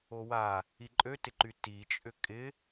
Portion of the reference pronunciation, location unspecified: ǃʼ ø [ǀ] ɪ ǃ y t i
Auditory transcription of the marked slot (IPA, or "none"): t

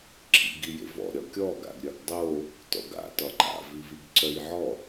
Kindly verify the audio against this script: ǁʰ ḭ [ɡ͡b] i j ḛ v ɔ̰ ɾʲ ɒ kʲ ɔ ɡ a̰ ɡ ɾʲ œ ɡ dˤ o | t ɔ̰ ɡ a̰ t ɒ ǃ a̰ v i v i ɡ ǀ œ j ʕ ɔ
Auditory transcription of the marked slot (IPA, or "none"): ɡ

